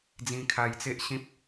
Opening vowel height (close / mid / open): close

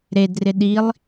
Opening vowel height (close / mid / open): mid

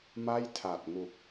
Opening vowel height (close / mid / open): open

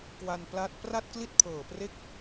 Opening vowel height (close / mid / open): open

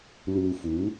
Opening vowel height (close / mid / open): close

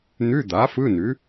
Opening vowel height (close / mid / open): close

